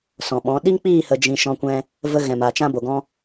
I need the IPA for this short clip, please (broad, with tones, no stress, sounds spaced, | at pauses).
s ɔ̃˨ ɓ ɔ̃˨˦ ɗ i˦ ŋ k͡p iː˦˨ h ə˧ d͡ʒ ĩ˧ ʃ ɔ̃˧ kʷ ɛ̃˧ | v ə˧ ɣ ɛ̃˨ m a˨ t͡ʃ ã˧ b o˨ ɡ ɔ̃˧